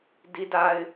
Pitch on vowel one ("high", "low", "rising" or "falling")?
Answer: high